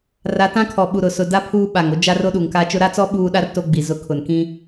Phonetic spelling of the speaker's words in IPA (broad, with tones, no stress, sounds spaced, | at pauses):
r a˨˦ t ã˦ kʰ ɔ˨ ɓ u˨ ɾ ʊ˨ s ʊ˨ d a˦ pʰ uː˦ ɓ a˨ ŋ o˦ d͡ʒ a˦ r o˦ ɗ uː˨ ŋ k a˦ t͡ʃ ʊ˦ ɾ a˦ t͡s ɔ˦ ɓ uː˦ ɗ a˦ r t o˦ ɡ͡b i˨ z ʊ˦ kʰ ʊ˨ n k ĩ˦